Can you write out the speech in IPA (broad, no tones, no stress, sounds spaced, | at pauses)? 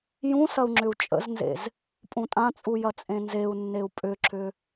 j ũ s ɐ u̯ ŋ͡ǁ ʏ u̯ t͡ʃʼ ə̰ z n z ḛ z | pʼ ũ tʼ ã t͡sʼ u j ɐ t͡sʼ ẽ n z e u̯ nː e u̯ pʼ ʏ ǁ ʏ